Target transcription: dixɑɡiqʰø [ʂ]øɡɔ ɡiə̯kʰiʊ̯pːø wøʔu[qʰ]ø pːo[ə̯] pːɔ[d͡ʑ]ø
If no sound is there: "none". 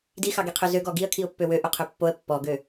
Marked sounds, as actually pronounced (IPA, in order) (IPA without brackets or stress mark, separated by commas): z, qʰ, ə̯, ɡ